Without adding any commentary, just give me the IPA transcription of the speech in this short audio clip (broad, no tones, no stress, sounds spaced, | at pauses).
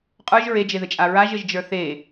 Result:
qʼ ə˞ ʒ ɹ e d͡ʒ e ð ɘ t͡ʃʼ a ɹ a ʒ ɘ ʒ d͡ʒ ə˞ θ e